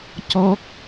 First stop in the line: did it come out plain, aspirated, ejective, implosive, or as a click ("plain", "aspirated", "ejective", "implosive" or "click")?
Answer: plain